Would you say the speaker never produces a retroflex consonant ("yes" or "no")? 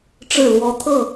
no